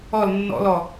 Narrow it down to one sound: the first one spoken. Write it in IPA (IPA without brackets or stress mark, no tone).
ɔ